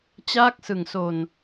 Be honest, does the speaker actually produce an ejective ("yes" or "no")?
no